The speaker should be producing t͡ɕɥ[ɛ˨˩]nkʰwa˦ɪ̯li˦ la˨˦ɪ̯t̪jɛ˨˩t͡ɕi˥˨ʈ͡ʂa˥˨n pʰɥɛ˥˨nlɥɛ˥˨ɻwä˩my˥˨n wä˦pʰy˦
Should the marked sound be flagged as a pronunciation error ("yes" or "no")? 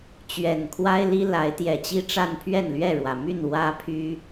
no